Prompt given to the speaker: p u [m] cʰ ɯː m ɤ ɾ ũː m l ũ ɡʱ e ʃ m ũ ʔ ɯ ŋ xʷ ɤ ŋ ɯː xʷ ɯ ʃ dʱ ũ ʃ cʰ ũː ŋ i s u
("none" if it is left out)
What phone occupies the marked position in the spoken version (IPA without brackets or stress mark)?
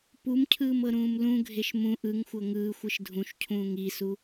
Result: m